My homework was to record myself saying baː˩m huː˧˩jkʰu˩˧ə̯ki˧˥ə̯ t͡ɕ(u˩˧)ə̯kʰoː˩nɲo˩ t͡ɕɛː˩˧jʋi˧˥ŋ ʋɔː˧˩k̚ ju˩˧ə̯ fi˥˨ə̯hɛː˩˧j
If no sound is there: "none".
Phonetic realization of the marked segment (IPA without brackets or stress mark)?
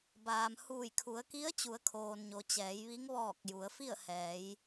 u˩˧